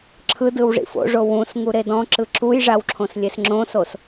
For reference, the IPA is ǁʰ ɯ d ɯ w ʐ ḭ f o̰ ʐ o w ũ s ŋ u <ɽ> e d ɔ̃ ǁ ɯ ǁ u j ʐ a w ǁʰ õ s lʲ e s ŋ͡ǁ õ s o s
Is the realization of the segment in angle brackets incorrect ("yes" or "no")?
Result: yes